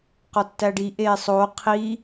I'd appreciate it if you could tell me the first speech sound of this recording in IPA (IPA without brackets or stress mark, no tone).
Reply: q